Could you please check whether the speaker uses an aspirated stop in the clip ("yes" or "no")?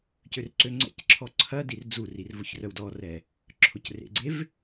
yes